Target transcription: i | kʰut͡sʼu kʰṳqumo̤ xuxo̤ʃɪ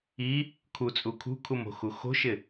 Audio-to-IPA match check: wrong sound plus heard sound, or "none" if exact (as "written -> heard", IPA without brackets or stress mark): q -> kʰ